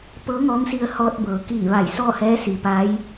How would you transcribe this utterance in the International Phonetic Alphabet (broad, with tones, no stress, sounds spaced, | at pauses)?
p ɤː˧˥ ŋ ɔː˧˥ ŋ s i˧ ə̯ h ɔː˧ t̚ b ɤː˩˧ k iː˧˩ ʋ a˧˩ j s ɔː˥˨ h ɛː˧˥ s i˩ p a˧˥ j